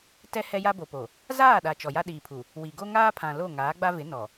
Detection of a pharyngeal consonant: absent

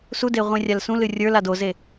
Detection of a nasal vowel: present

